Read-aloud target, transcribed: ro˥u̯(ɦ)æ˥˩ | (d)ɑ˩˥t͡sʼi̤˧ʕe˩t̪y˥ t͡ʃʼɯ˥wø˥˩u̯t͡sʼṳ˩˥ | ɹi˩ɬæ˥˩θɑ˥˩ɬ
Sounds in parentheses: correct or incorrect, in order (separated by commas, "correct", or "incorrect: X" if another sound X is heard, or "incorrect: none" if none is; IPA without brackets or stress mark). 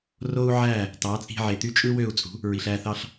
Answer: incorrect: ʕ, incorrect: t